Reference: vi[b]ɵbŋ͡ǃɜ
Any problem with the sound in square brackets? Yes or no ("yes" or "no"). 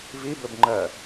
no